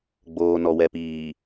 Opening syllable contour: low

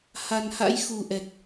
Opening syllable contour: low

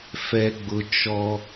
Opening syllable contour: low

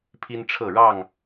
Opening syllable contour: high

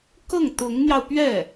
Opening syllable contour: falling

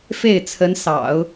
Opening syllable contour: falling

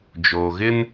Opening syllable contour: low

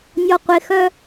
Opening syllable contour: low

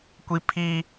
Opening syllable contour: high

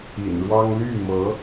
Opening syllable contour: low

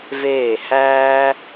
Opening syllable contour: falling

